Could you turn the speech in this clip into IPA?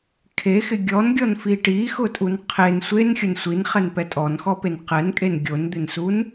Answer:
kʰexɪ ɡʲɔnɡʲɔnfi ʈixʊtʼun qʰen sʷenxʲʊn sʷinχɛnpɛ tʼɔnxɔpen qɛnkʼen ɡʲond̪ɪnsun

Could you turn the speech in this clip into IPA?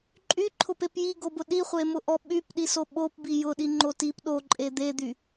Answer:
ǃʼyǃʰʊpep jiɡobʊ ɗiχʷemʊʔɔ ɓypɗiso ɓopbi jʊɗiŋ͡ǃo tip ɗoǃʼe d̪ed̪y

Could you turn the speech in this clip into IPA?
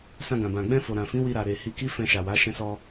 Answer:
sã˧ɡã˨bã˨ ɡ͡bɛ̃˧ fo˨ɾã˨fĩ˨˦ wi˧ɾa˨ɾe˨ hi˧ki˦ fɛ̃˧ʃa˨wa˨˦ ʃɛ̃˧sɔ˧

